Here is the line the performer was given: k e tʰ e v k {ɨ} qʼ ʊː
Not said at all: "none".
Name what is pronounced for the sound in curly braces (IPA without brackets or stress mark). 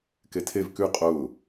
ʉ